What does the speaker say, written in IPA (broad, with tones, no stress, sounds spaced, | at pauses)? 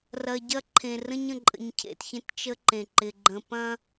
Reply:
r ɐ˨ ɟ ɐ˦ ǃʰ ẽ˨ r ə̃˦ ɲ ə̃˨ ǃʼ ə̰˨ ɲ cʰ ḛ˨ t ç ẽ˦ t t͡ʃ ə˦ ǃ ẽ˨ ǃ ɪ˨ ɡ͡ǃ ə̃˨ p ɐ̃˦